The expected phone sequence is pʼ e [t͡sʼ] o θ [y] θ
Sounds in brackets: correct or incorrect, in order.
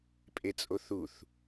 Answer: correct, incorrect: u

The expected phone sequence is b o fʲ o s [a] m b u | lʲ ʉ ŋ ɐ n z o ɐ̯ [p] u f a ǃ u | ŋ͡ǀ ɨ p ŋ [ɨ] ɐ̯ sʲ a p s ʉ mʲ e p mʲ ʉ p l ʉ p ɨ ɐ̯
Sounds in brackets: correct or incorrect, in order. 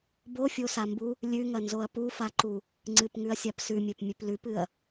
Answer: correct, correct, incorrect: ʉ

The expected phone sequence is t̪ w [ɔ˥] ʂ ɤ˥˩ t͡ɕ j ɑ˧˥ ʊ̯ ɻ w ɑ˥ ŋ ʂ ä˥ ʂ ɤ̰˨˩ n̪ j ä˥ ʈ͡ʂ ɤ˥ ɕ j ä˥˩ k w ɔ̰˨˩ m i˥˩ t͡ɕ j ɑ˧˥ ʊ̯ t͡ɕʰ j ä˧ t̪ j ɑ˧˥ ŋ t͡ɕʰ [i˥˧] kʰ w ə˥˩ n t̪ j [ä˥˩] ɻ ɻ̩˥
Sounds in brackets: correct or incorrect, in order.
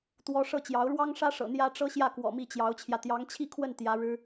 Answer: correct, correct, incorrect: ä˧˥

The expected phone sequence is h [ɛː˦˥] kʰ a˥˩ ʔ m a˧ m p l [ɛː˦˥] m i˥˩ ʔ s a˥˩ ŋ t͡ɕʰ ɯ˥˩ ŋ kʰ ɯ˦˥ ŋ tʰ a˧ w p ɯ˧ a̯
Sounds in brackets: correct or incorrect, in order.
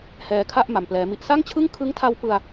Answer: incorrect: ɛː˧, correct

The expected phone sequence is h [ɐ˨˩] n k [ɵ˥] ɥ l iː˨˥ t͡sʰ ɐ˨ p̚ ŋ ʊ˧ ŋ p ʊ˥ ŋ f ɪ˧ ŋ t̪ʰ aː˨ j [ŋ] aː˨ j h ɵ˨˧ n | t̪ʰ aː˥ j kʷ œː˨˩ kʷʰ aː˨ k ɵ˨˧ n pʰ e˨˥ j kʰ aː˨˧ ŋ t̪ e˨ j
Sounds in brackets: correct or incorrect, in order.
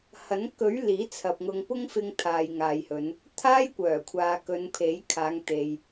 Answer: incorrect: ɐ˨˥, incorrect: ɵ˨˥, correct

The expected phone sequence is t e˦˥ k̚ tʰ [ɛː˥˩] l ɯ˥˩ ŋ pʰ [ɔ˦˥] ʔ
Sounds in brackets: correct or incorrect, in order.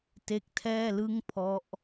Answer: correct, correct

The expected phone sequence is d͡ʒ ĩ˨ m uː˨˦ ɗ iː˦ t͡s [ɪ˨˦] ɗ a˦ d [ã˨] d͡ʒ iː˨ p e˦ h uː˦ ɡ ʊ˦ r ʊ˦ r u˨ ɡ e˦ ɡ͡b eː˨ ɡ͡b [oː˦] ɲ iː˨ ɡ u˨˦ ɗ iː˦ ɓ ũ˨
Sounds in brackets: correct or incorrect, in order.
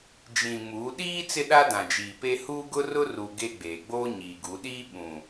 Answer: incorrect: ɪ˦, correct, correct

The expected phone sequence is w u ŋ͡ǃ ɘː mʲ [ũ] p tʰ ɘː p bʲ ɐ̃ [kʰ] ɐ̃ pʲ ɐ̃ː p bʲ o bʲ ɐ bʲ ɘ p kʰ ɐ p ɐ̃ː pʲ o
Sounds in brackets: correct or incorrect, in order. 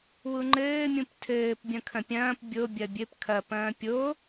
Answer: correct, correct

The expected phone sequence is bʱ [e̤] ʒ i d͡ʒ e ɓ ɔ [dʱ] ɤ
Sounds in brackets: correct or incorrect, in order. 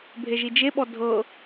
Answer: incorrect: e, correct

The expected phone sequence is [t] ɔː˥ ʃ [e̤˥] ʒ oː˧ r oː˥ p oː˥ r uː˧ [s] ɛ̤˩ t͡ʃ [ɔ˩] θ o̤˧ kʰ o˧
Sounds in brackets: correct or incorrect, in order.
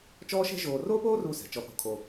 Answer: incorrect: t͡ʃ, incorrect: ɛ̤˥, correct, incorrect: ɔ˧

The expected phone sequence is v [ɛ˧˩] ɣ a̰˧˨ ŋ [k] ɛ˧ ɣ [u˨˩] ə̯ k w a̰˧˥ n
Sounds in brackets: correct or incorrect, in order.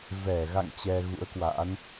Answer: correct, incorrect: t͡ɕ, incorrect: ṵ˧˥

